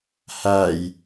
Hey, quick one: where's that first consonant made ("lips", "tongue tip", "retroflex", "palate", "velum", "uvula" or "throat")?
throat